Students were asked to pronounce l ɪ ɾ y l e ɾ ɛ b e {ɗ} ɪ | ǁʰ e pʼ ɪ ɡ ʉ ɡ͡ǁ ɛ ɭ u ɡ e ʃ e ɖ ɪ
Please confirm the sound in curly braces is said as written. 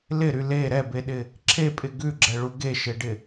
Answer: yes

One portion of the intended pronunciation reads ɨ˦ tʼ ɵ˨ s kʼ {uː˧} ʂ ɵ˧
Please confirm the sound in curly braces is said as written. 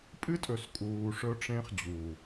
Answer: no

